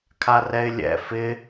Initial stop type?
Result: aspirated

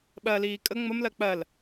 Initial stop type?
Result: implosive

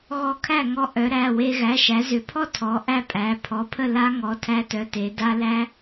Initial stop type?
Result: aspirated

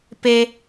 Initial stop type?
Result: plain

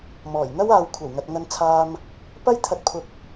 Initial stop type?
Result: aspirated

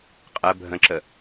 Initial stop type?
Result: ejective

